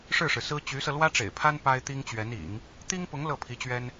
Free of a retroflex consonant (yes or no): no